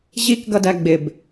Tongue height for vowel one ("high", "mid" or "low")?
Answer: high